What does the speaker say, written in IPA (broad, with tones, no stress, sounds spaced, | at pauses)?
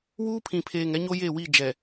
w uː˦ pʰ ĩ˨ pʰ eː˨ ŋ ɛ˦ ɲ o˦ j e˦˨ w i˦˨ d͡ʒ ɛ˨